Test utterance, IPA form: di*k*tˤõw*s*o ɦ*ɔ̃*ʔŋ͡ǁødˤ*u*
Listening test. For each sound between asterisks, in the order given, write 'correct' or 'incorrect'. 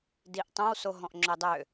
incorrect, correct, correct, incorrect

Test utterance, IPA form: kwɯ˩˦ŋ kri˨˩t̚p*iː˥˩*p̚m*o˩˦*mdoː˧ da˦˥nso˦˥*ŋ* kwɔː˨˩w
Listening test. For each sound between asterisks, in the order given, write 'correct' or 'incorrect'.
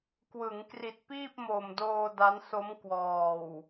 correct, incorrect, incorrect

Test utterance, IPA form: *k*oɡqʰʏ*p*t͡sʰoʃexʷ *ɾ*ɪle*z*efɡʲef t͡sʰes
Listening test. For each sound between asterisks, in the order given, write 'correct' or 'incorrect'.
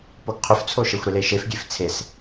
incorrect, incorrect, correct, incorrect

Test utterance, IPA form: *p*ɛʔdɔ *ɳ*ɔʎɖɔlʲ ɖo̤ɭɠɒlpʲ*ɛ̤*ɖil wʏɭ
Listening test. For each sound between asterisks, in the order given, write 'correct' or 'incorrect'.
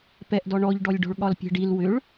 correct, correct, correct

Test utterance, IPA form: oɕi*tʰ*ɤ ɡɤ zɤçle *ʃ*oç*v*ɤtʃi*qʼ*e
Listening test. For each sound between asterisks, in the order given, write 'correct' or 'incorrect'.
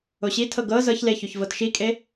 correct, incorrect, correct, incorrect

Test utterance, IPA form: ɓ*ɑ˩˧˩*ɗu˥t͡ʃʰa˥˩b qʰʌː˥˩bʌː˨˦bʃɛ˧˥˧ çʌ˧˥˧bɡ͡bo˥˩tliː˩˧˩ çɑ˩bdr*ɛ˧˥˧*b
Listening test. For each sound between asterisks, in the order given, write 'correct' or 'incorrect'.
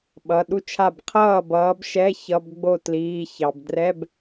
incorrect, correct

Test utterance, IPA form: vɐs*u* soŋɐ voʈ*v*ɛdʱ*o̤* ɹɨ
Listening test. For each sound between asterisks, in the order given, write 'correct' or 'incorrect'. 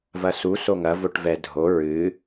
correct, correct, incorrect

